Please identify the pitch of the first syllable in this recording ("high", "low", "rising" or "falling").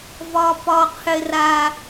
high